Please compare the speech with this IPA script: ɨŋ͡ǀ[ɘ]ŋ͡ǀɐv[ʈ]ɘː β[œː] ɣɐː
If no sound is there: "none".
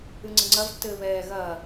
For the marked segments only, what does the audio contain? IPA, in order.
ɘ, tː, ɛː

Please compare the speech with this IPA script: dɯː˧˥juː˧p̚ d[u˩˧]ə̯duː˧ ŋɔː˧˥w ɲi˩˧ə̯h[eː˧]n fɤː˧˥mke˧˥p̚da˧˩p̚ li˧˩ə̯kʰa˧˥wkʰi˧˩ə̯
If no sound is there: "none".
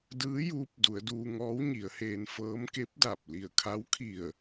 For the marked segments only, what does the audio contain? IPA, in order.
u˩˧, eː˧

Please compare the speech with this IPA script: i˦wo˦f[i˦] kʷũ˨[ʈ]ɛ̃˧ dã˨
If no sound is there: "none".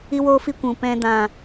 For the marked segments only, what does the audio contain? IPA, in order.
i˦, p

